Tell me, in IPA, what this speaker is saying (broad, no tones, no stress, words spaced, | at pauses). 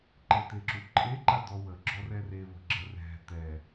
ǃet̪eǁuǃʼe ǃad̪ɔwə ɡ͡ǁɔrɛre βə̤ɡ͡ǁərɛ̤ t̪ɛ